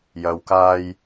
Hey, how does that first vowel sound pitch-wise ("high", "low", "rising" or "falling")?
low